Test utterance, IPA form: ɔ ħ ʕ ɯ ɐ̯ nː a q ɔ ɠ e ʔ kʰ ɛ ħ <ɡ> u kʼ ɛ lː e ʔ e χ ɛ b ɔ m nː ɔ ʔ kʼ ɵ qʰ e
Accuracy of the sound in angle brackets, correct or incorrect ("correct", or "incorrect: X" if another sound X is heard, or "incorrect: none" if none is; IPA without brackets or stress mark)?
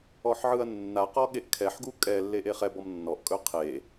correct